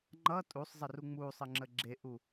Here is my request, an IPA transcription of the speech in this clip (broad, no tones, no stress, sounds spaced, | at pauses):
ŋ͡ǃ ʌ tʼ u sˤ zˤ ə r u ŋ͡m u sˤ ə ŋ͡ǁ ə ɡ͡ǁ e ʔ u